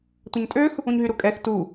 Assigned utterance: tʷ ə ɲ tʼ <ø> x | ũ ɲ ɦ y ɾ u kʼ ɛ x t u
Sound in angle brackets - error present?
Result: no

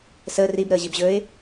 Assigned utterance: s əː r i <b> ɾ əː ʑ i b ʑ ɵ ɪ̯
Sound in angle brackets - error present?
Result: no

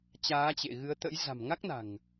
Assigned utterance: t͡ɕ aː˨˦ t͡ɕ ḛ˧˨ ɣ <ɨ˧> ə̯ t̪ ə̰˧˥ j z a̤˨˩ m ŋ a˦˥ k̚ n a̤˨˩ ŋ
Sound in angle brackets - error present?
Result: yes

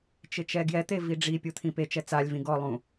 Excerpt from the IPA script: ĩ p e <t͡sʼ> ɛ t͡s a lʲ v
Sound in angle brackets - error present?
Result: yes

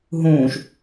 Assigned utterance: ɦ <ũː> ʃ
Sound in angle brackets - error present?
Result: no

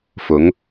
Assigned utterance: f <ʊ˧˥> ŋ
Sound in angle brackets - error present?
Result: no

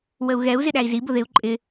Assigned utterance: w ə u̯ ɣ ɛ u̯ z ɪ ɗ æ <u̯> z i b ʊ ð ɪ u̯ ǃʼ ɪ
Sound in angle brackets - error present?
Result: yes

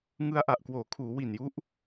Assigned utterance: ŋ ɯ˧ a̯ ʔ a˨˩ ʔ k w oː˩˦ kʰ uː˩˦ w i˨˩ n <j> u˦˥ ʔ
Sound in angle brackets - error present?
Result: no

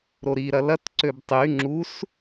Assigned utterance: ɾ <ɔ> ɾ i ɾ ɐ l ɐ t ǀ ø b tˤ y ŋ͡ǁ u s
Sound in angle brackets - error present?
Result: yes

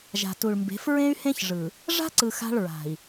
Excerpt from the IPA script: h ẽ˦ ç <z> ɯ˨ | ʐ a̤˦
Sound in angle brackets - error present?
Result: yes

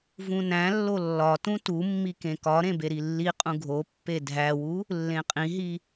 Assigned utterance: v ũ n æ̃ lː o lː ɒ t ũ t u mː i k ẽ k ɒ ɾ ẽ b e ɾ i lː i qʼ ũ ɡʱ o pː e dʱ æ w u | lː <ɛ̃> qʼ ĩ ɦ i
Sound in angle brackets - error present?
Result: yes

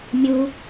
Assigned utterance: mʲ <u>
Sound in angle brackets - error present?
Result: no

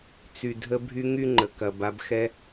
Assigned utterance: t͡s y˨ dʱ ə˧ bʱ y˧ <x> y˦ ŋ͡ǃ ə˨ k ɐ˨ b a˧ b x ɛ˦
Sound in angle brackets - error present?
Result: yes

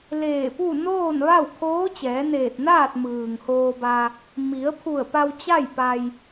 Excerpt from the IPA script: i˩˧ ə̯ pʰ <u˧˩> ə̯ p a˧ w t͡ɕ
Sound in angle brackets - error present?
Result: no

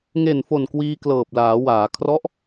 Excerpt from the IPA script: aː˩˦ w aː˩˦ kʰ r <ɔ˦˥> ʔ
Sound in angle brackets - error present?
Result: no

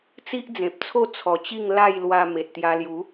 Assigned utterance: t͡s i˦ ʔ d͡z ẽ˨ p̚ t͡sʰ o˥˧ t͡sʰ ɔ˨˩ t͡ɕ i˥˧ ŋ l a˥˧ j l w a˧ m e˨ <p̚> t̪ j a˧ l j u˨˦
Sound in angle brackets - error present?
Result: yes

